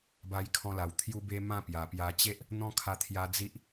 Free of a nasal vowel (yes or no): no